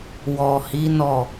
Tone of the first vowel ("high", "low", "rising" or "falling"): low